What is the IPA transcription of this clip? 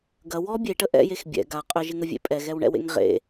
ɡ ɐ w ɔ bʲ e ʈ ə ʔ ɛ̰ j e x bʲ ɛ̰ ɡ a qʼ ʏ ʒ ɪ ŋ ə vʲ ḛ pʼ ɛ ɣ ɛ w ɳ ɛ̰ w ḛ ŋ ʁ ḛ

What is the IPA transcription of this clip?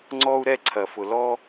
ŋ͡ǀ ɔ˦ u̯ ɾ ɛ˦ ǀʰ ɐ˨ f ʊ˨ l ɔ˦

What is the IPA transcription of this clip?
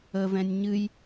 ə v ɛ̃ nʲ ɲ ɨ j

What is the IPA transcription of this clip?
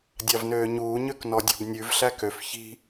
dʲ ɑ v n øː ɲ uː ɲ ø k n ɔ dʲ ɔ̤ b nʲ ʉ v ɬ æ k ø f ç i̤

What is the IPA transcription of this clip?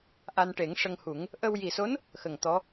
ʔ a˧ n ʈ e˨˩˦ ŋ ʂ ə˧ ŋ h u˨˩˦ ŋ | ʔ ə˧ w j i˨˩ s o˧˥ n | x ə˨˩ ŋ t̪ ɔ˧˥

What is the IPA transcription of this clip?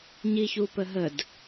ɲ i ç u p ə ɦ ə d

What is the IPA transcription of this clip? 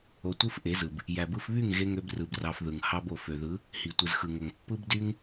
o˧ tʷ ɯ˦ f ʔ e˨˦ z ɯ˨ b | j æ˨ b ɯ˧ f β y˦˨ ŋ ɣ e˧ ŋ ø˧ b r ɯ˨ b r ɑ˧ f ð ɯ˨ ŋ h ɑ˧ b o˨ f ø˨ ð ɯ˨˦ | h i˨ tʷ ɯ˨ z x ɯ˨ ŋ o˨ ŋ pː ɯ˦ b d y˦ ŋ

